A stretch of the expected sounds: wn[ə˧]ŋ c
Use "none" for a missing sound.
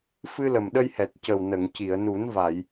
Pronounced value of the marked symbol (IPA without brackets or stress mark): ə˨˩˨